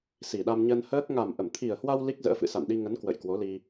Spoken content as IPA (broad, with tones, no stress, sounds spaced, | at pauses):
s i˨˩ ɗ a˧ m ɲ ə˧ n h əː˦˥ k̚ ŋ a˨˩ m ʔ ə˧˩ m t̪ʰ i˨˩ ə̯ h w a˧ w l i˦˥ k̚ z ə̰ː˧˥ f ɨ̰˧˨ s a̰˧˨ n ɗ i˧ ŋ ə˨˦ n k w ə̰˧˨ j k w o˨˦ l i˧